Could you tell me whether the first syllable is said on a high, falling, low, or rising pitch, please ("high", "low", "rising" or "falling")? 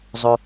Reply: high